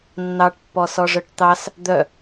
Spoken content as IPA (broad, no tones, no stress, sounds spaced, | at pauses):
nː ɑ ʈ pː ɔ s ɔ ʐ œ ʈ t̪ ɑ s | d̪ œ